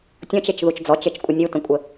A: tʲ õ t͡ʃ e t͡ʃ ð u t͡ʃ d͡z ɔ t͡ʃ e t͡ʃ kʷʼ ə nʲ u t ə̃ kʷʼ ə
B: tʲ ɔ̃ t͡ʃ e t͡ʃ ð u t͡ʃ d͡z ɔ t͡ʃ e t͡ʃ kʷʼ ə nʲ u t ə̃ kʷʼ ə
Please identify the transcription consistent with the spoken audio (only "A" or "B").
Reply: B